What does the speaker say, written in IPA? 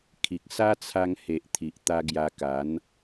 kʰ i˨ k̚ s a˦ t͡sʰ a˧ ŋ h e˨ ʔ t̪ʰ i˨ ʔ t̪ a˧ ɡ j a˧ k a˨˦ n

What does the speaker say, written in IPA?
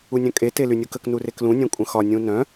u nʲ œ̃ kʼ e t e l y nʲ u k ə k n u r e k l ũ nʲ œ̃ kʷʼ ə̃ x ɒ nʲ ũ n œ̃

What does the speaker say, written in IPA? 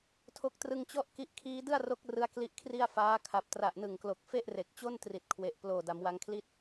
tʰ o˦˥ k̚ t r ɯ˧ ŋ t͡ɕ ɔ˥˩ ʔ k i˦˥ ʔ kʰ iː˦˥ d ɯ˥˩ a̯ r o˦˥ k̚ r ɯ˦˥ a̯ k l i˦˥ ʔ kʰ r i˥˩ a̯ f aː˦˥ kʰ a˨˩ p̚ t r a˨˩ ʔ n ɯ˨˩ ŋ k l o˨˩ k̚ f e˥˩ ʔ r e˨˩ k̚ t͡ɕ o˥˩ n t r i˨˩ t̚ kʰ w e˨˩ ʔ p l oː˨˩ d a˩˦ m w a˧ ŋ kʰ l i˥˩ t̚

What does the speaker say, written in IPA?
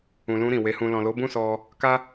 ũ˨ l ũ˧ ɾ ĩ˨ w e˨˦ h ũ˧ l ɔ̃˨ l o˨˦ b ũ˦˨ s ɔ˧ | k a˦

